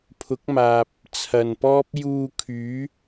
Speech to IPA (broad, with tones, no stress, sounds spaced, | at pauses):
pʰ ʊ˨˥ k̚ m aː˨ p̚ | t͡sʰ ɐ˨ n p ɔː˥ p̚ j uː˧ kʰ yː˨˥